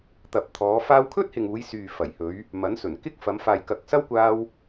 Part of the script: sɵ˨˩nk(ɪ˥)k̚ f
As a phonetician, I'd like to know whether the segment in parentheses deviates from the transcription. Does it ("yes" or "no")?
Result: no